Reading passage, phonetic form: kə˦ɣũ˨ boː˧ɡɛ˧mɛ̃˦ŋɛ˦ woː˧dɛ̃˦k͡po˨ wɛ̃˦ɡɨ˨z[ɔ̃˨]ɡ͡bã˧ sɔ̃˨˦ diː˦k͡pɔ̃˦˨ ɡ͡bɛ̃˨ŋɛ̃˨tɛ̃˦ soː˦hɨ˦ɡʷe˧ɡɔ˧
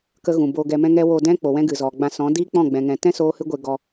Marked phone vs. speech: incorrect: ɔ˨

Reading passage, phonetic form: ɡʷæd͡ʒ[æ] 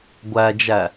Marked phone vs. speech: correct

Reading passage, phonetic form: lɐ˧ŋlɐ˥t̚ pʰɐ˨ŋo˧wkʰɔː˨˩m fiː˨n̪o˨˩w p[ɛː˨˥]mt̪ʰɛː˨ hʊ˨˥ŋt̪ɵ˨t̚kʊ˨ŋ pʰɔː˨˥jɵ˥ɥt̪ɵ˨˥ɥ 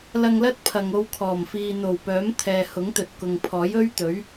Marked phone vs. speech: incorrect: œː˨˥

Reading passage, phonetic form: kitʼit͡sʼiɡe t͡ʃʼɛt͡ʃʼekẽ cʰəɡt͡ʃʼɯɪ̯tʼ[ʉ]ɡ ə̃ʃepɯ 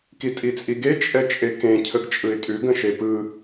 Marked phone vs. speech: correct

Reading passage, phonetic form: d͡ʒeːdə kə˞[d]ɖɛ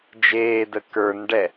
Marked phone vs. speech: incorrect: n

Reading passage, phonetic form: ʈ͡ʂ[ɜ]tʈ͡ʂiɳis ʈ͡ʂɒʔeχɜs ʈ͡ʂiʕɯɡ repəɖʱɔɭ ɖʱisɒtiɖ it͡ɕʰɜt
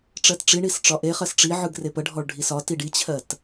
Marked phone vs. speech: correct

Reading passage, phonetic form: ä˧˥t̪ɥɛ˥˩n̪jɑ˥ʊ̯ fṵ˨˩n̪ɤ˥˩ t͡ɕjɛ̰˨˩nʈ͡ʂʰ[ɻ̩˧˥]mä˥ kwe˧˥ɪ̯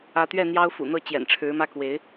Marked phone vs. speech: correct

